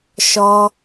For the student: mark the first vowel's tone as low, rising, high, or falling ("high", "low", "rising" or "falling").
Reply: high